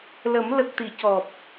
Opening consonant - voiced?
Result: yes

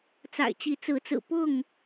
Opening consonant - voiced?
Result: no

